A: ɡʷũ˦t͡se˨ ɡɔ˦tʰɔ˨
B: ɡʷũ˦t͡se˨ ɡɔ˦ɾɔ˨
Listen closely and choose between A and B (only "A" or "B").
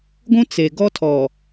A